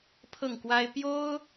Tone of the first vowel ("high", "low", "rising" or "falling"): falling